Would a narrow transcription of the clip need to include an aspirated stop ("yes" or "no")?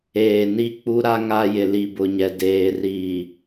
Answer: no